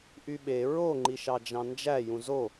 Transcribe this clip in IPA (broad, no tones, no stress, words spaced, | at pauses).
ʔyɓe ɹo ŋ͡ǃiʃɑd͡ʒɑ̃nd͡ʒæ jũzo